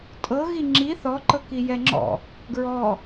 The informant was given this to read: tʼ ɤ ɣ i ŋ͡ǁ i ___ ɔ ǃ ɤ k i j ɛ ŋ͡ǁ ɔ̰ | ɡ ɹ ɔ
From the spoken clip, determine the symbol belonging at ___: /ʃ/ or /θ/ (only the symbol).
θ